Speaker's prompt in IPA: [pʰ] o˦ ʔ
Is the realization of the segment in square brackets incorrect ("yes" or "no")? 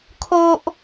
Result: yes